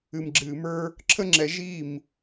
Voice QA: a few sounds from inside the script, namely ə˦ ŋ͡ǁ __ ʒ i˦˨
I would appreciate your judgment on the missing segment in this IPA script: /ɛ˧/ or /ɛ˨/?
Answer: ɛ˧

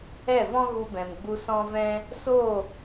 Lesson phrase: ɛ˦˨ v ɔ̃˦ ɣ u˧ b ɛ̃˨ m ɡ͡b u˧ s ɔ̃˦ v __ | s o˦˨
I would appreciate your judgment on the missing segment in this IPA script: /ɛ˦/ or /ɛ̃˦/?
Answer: ɛ̃˦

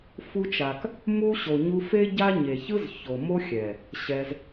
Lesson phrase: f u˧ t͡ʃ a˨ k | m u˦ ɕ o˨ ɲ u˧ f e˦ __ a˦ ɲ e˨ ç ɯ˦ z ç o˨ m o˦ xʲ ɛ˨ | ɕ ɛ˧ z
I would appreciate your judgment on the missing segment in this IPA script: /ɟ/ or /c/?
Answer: ɟ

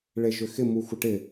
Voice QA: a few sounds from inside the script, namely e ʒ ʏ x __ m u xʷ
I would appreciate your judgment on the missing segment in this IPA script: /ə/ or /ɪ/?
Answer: ɪ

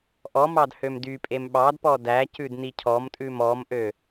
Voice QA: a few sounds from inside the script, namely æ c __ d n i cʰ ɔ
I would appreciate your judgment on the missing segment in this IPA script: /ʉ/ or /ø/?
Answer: ʉ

